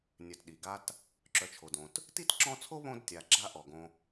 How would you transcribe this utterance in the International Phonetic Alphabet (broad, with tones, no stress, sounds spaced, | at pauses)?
nʲ œ˨ t ɗ i˩ ɡ a˦ t | ǁ œ˨ t͡ʃʰ o˩ d õ˩ t | t i˥ t ǁ ɔ̃˦ t͡sʰ o˥ β õ˥ d tʲ a˨ ɡ͡ǁ a˥ ʔ ɔ˩ ɡ õ˨